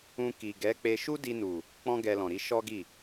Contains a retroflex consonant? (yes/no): no